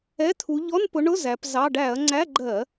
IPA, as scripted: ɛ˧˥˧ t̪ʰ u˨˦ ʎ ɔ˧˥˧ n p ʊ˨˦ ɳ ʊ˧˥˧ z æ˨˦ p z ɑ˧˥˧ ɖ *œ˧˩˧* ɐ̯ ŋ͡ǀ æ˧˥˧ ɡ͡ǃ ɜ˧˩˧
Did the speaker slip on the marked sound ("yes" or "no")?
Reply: yes